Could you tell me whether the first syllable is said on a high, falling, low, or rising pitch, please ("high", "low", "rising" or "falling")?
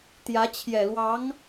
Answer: rising